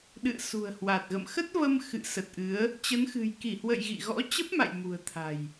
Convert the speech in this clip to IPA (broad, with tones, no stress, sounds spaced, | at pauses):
ɗ ɨ̰˧˨ ə̯ s ṳ˨˩ ə̯ h w a˨˩ t̚ ɣ ə̰˧˨ m x ə˦˥ t̚ v ə˧ m x ɨ̰˧˨ s ə˨˩ t̚ ʔ ɨ˨˦ ə̯ | t͡ɕ ə˨˦ n x ɨ̤˨˩ j k i˧˩ h w ə̰˧˨ j ɣ ḭ˧˨ ɣ ɔ̰˧˥ t͡ɕ ə˦˥ p̚ m a̰˧˨ j m ṳ˨˩ ə̯ t̪ʰ a̤˨˩ j